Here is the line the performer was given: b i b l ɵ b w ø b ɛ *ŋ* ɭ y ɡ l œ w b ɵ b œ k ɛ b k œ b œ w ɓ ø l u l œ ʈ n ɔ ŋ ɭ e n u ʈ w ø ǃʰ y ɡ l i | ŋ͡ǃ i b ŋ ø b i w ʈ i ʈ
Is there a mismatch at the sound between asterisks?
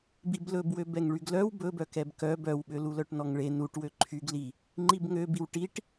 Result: no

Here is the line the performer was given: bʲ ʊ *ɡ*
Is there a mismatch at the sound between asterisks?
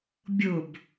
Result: yes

